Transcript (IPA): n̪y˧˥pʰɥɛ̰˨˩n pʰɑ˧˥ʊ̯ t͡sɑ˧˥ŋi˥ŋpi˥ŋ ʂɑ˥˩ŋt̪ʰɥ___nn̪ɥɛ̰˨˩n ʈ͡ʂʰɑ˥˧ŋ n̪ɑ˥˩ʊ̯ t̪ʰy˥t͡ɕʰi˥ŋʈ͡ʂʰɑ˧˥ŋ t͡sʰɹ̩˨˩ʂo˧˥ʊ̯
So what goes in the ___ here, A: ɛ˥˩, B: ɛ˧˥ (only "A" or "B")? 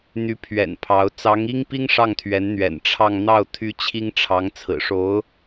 B